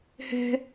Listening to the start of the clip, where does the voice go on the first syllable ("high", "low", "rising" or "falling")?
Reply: high